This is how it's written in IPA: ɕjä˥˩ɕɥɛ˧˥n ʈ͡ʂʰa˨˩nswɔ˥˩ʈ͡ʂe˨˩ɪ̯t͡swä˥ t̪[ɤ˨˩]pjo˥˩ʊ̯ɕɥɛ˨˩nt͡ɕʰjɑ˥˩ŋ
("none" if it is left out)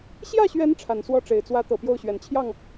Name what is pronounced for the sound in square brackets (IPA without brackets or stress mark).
ɤ˨˩